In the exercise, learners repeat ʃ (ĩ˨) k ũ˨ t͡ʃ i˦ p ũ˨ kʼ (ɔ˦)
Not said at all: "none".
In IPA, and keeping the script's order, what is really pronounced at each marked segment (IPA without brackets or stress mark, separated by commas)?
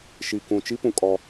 i˨, ɔ˦